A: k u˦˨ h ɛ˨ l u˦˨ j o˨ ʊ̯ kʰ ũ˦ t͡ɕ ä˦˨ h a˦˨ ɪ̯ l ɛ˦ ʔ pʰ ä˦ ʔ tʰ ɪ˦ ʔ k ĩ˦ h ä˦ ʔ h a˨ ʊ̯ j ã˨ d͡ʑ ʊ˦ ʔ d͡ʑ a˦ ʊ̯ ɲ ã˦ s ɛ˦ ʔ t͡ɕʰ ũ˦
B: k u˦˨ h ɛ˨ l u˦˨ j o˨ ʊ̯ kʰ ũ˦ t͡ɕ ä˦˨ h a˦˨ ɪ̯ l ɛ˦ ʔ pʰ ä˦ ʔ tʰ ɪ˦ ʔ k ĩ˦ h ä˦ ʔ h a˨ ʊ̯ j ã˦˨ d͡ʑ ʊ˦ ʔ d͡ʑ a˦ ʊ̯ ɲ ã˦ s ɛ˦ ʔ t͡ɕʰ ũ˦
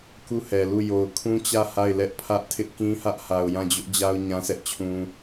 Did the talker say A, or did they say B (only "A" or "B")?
B